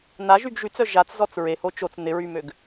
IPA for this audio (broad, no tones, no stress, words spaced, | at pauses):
naʒyɡ ʒyt͡sœ ʒat͡szɔt͡s ɹeho t͡ʃot͡s nɪɹymøɡ